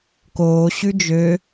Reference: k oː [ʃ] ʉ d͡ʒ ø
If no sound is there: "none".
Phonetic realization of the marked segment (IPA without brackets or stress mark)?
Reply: ɕ